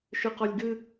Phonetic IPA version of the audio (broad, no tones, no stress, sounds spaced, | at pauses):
ʃ ɨ q ɔ lʲ ɡ ɨ